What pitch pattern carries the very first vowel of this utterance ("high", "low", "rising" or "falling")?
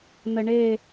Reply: low